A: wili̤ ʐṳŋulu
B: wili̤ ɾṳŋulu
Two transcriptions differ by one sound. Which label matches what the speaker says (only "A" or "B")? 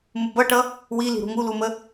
B